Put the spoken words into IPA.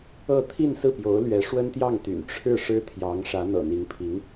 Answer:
ɤ˥˧ t̪ʰi˥˧nsɹ̩˥˩pjo˧˥ʊ̯lɥɛ˧˥ ʂwə˥nt̪jɑ˥˩ŋt̪y̰˨˩n ʈ͡ʂʰɻ̩˥˩ ʂɻ̩˥t̪ʰjɑ˧˥ŋʂä˧˥ n̪ɤ̰˨˩n̪i˧˥ŋpʰi˧˥ŋ

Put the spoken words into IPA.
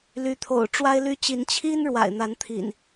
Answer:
ly˨˦t̪ʰo̰˨˩ʊ̯ ʈ͡ʂwa˦ɪ̯ly˦ t͡ɕi˨˦n t͡ɕʰi˦n ɻwa̰˨˩ɪ̯n̪a˨˦nt̪ʰḭ˨˩n

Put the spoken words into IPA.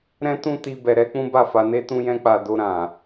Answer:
ɾɛ̃˦tũ˦ti˧ bɛ˧ɾɛ˦k͡pũ˦ ba˦˨fa˧ne˦ tũ˦jɛ̃˦k͡pa˧ do˧ ɾã˨

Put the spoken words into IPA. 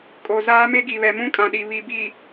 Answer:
kʼo˨ zaː˦me˦ɡi˨ βɛ˨mũ˦kʼã˨ɗi˨ βi˨bi˨

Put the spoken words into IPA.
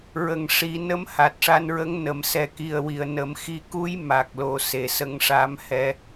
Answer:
ɹə˨˩ŋʂi˨˩˦ nə˧˥mha˨˩t̚ʂa˧nɹə˧˥ŋ nə˨˩˨msɛ˨˩ki˨˩ə̯wi˨˩˨ə̯ nə˨˩˦mxi˧˥ ku˧˥j ma˨˩k̚lo˨˩se˨˩˨ sə˧ŋʂa˧˥mhɛ˧

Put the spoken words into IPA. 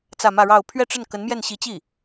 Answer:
t͡sä˥˧mä˥˧ɻɑ˥˧ʊ̯ pʰɥɛ˥˧ʈ͡ʂə˥˩n kə˧˥nmjɛ˥˩nɕi˧˥t͡ɕi˥˩

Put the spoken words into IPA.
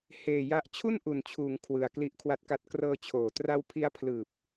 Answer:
heː˨˩ ja˦˥ʔ t͡ɕʰu˥˩nʔu˩˦nt͡ɕʰuː˩˦ŋ kʰwɯ˨˩a̯ kli˦˥ʔkʰwa˦˥t̚ka˦˥t̚ krɤː˧t͡ɕʰoː˩˦ tra˦˥wpʰi˦˥a̯pʰlɯː˨˩p̚

